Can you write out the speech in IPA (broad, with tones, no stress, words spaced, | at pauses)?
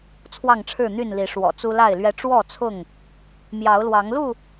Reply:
t͡sʰwɑ˥˨ŋʈ͡ʂʰɻ̩˥˨n̪y˥˨nli˨˦ ʂwɔ̰˨˩t͡su˦la˥˨ɪ̯lɥɛ˦ ʈ͡ʂwɔ˥˨t͡sʰʊ˥˨ŋ | mjɑ˨˦ʊ̯lwɑ˨˦ŋlu˥˨